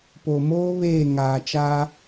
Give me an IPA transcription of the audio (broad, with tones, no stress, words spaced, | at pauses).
po˨ moː˦ βeː˦˨ ŋaː˨t͡ʃa˦